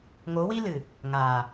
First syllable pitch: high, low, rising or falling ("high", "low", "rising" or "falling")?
rising